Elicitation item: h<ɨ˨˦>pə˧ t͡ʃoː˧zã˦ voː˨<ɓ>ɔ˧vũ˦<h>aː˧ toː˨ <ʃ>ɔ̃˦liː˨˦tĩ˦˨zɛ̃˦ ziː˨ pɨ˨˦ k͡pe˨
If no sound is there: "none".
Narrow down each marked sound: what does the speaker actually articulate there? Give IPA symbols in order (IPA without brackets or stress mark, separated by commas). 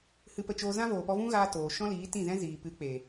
ɨ˧, p, ɣ, ʃ